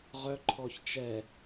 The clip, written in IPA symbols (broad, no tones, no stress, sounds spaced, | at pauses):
ʁ œ ǃʰ ɔ ç t͡ʃ ɛ